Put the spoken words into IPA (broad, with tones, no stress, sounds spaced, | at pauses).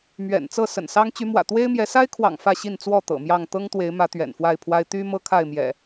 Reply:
m ɥ ɛ̰˨˩ n t͡s ɤ˥˨ s ə̰˨˩ n s ɑ˦ ŋ t͡ɕ y˨˦ m w ä̰˨˩ t̪ w e˦ ɪ̯ m j ɛ˨˦ s a˦ ɪ̯ kʰ w ɑ̰˨˩ ŋ f ä˥˨ ɕ i˥˨ n t͡s w ɔ˥˨ t̪ ɤ̰˨˩ m j ɑ˥˨ ŋ t̪ ɤ˦ ŋ t̪ w e˨˦ ɪ̯ m ä˨˦ t̪ ɥ ɛ̰˨˩ n f w a˥˨ ɪ̯ pʰ w a˦ ɪ̯ t̪ y˦ m ɤ˦ kʰ a˥˨ ɪ̯ m j ɛ̰˨˩